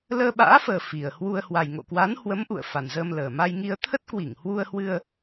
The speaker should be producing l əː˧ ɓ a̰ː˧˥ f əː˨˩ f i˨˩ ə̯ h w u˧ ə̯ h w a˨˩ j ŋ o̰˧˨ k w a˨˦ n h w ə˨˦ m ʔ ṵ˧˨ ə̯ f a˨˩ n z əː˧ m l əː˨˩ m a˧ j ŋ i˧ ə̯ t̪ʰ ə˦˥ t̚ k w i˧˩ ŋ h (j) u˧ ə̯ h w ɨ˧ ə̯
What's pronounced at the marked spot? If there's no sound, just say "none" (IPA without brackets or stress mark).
w